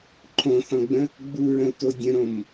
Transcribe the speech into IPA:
ǃʰ õ θ ɔ̃ ɡ͡b ə̃ | ɡ͡b u ɹ ə̃ u̯ t o dʲ ə̃ ɾ õ m

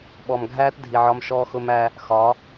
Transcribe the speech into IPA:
ɓ ɔ˨ m ɡʱ æː˦ t dʱ i˨ ʕ ɒ˧ m ʃ ɔː˧ x ʊ˧ m æ˧ | x ɒ˨˦

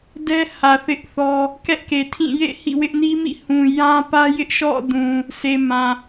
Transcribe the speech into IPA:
d ɛ˦ h ä˨ θ ɪ˦ ʔ θ ɔ˦ | k ɛ˦ ʔ k e˨ tʰ ĩ˦˨ j ḛ˦˨ h ḭ˦˨ w ɪ˦ ʔ n i˦ m ḭ˦˨ h ũ˨ j ã˦ p ä˦ j ɪ˦ ʔ ʃ ɔ̰˦˨ d ũ˨ | sʰ e˨ m ã˨

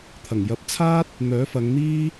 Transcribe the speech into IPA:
t̪ʰ ɐ˨˩ ŋ j ɐ˧ p̚ t͡sʰ aː˥ t̚ | n̪ œː˨˥ f ɐ˨˧ ŋ n̪ iː˥

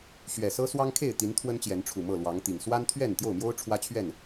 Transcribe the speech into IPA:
ɕ ɥ ɛ˨˩ s ɤ˦ s w ɑ˦ ŋ kʰ e˥˨ ɪ̯ t̪ i˨˦ n t̪ʰ w ə˦ n t͡ɕ j ɛ˨˦ n ʈ͡ʂʰ u˨˩ m ɤ˥˨ l w ɑ˨˦ ŋ t̪ i˨˩ ŋ s w a˦ n t̪ʰ ɥ ɛ˥˨ n t̪ j o˥˨ ʊ̯ m j o˦ ʊ̯ ʈ͡ʂʰ w ä˦ t͡ɕʰ ɥ ɛ˥˨ n

